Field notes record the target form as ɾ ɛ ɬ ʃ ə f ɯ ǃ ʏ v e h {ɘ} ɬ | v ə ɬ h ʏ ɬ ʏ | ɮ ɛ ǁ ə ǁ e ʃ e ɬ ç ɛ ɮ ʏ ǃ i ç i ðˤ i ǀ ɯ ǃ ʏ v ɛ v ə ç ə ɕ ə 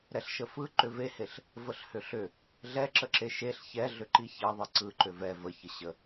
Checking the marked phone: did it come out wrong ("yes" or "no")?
yes